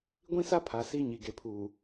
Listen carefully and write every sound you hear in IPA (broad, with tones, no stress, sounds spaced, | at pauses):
ɡʷ ĩ˦ s a˦ pʰ a˨ s i˦ ɲ i˨ ɡ e˨ pʰ uː˨